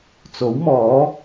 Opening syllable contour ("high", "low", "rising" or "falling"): rising